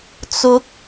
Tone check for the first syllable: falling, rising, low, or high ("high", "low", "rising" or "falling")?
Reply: rising